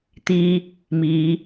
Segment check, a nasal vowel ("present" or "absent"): absent